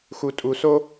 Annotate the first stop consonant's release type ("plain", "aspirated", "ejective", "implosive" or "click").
ejective